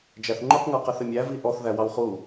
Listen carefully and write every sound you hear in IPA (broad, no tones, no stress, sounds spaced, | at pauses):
d͡ʒ æ θ ŋ͡ǃ u q ŋ ə˞ q ə θ ɪ mʲ æ v i ʔ ɔ θ ð æ w ɑ w χ u